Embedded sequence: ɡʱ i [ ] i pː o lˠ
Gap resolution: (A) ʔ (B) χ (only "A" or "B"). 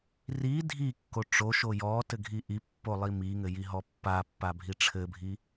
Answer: A